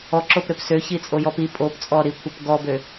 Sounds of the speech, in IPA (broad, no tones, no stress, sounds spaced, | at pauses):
ɔ ǁ o p ɾ ø p s ø ç i t͡sʼ o j ɔ p i pʼ o p t͡sʼ ɔ ɾ i kʷʰ ə p ɡ ɔ b ø